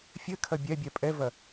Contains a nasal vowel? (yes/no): no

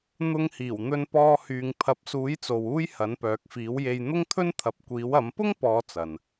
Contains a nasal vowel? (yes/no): no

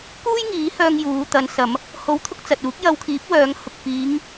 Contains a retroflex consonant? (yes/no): no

